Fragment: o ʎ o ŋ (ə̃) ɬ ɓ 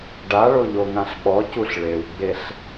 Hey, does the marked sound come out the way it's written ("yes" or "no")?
no